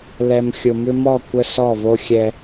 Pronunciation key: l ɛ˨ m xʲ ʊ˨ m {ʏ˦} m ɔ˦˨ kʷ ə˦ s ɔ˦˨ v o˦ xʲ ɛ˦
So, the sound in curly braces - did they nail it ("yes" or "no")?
yes